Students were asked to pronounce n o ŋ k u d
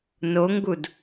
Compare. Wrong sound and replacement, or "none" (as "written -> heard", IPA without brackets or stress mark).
k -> ɡ